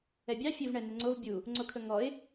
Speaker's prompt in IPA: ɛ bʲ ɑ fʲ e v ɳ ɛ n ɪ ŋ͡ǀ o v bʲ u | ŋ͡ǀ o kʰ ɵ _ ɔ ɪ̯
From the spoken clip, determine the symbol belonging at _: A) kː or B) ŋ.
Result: B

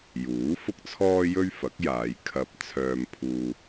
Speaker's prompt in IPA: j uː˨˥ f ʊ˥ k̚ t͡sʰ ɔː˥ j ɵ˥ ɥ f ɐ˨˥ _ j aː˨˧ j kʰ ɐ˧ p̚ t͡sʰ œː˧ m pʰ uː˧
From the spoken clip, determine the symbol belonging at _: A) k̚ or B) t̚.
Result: A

